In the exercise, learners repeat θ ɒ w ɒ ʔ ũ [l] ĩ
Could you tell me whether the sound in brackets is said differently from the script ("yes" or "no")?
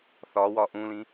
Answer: no